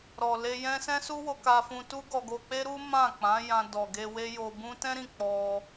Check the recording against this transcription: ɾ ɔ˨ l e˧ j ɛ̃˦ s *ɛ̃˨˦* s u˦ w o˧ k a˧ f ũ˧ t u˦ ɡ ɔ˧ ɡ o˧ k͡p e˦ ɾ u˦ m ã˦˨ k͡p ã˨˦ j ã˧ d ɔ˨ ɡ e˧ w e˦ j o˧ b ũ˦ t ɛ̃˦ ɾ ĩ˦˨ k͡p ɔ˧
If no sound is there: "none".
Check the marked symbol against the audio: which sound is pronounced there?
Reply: ɛ̃˦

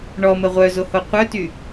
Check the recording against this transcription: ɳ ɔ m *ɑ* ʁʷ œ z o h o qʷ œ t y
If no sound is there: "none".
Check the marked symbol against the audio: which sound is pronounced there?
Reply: ə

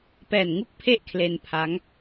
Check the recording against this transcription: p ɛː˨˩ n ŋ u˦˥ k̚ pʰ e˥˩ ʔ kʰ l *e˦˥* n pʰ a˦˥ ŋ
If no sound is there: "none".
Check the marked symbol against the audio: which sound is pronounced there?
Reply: e˧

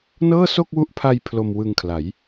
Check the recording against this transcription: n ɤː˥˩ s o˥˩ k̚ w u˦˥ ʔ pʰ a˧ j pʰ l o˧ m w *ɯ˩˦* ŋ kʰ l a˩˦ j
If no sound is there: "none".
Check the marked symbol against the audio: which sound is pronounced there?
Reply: ɯ˧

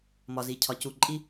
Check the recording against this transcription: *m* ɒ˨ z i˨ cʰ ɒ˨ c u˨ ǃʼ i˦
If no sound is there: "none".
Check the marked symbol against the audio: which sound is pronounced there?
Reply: m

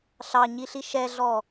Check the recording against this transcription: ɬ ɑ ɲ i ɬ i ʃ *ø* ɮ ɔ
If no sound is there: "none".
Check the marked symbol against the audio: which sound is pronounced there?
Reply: ɛ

